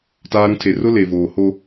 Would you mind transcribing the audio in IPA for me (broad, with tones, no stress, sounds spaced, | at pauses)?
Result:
t aː˦ ɾ ũ˦ tʰ e˨ r ʊ˦ l e˨ v oː˨ h o˦